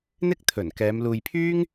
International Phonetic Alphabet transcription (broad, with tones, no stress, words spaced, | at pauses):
n̪ɪ˥k̚ t̪ʰɵ˨˩nkɛː˨˧m luː˨jpʰyː˥ŋ